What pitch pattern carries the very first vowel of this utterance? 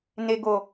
low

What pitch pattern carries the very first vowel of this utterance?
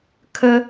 high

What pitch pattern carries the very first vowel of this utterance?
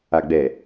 low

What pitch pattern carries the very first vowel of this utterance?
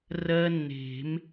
high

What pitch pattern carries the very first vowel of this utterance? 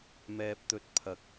high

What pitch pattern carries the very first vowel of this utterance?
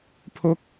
rising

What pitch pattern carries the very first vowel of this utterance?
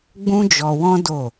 high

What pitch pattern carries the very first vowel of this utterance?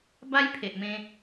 high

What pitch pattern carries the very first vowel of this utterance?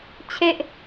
high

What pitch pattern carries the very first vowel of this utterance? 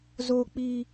high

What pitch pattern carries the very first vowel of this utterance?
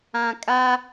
low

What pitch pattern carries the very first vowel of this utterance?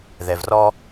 low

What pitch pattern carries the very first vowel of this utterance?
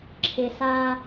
low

